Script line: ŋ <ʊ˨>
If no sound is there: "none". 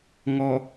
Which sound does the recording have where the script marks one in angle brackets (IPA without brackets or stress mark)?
ɔ˨